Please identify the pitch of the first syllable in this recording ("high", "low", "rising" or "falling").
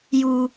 low